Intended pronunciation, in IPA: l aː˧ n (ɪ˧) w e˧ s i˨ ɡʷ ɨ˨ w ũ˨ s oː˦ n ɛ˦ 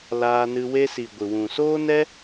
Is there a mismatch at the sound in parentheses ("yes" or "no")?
yes